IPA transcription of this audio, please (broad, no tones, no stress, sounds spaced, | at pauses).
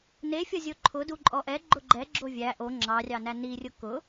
n e fʲ ɒ zʲ o ǃʰ ʊ d u ǃʼ ɔ ʔ ɛ ɡ͡ǃ ʊ ɡ͡ǃ ɛ ɡ͡ǁ o vʲ æ ʔ o ŋ͡ǁ ɑ rʲ ɑ n æ n i rʲ ʊ k ʊ